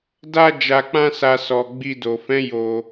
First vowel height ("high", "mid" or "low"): low